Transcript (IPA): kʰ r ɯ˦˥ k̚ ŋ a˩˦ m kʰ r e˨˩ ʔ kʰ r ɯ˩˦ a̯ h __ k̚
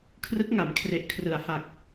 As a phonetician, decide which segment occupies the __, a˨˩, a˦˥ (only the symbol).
a˨˩